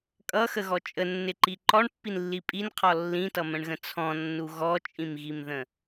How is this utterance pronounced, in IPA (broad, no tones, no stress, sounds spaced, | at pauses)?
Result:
kʼ ʌ x ə ɣ ɔ t͡ʃʼ ə nː ɪ ǃ i ǃ ɔ ɳ pː i n lː i pʼ i n qʰ ɔ lː ĩ t ʌ m ə̃ ɳ ɣ ə̃ t͡sʰ ɔ̃ nː u ɣ ɔ t͡ʃʼ ĩ m ɣ i m ð ə̃